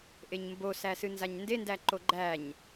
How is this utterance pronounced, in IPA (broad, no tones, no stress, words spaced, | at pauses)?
ʔeɲmbosæsɨ nzaɲndendæǃo ɡ͡ǃæɲ